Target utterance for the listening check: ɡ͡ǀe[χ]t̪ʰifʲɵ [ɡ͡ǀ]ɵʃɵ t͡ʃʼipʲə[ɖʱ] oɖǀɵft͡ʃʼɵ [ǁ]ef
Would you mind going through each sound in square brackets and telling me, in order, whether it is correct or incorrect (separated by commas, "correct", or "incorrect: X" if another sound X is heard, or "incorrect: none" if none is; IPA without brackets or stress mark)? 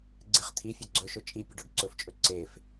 correct, correct, incorrect: ɖ, incorrect: ǀ